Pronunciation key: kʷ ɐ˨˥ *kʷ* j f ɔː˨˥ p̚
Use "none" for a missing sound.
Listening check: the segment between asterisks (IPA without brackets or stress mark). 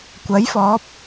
none